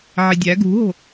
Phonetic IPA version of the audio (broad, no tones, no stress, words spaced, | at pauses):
ʕidʲæ ɡṳɦo̤